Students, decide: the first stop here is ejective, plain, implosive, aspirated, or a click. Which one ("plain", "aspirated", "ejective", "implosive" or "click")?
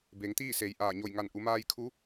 plain